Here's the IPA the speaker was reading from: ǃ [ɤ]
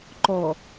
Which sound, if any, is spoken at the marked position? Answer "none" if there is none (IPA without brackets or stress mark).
ɔ